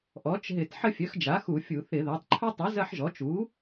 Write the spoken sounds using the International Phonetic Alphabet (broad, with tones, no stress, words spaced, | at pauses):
ʔɔ˩˥t͡ʃɦɪ˧˩˧t ħə˦fʲœ˩˥xd͡ʒa˩˥ xu˧˩˧fʲu˧˩˧θɪ˧˩˧ða˩˥tˤ ǃʰœ˦tˤu˩˥ zɐ˦ħʒɔ˩˥ t͡ʃu˩˥